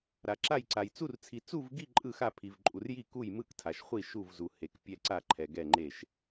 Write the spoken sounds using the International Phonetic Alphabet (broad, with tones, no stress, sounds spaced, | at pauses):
ɾ a˨ ǁ a˥˨ j ǀ a˨ j t͡s u˥˨ r t͡sʰ i˨ t͡s u˥˨ v ɡ i˥˨ ǃʼ ɯ˥˨ x a˥˨ pʰ i˨ v ǃʼ u˨ r j i˥˨ k u˥˨ j m ɯ˥˨ k tʰ a˨ ʃ χʷ i˥˨ ʃ u˥˨ v z u˨ h e˨ k pʲ ɛ˥˨ ǀ a˥˨ ǃʰ ɛ˨ ɡ ɛ˥˨ ŋ͡ǃ e˥˨ ʃ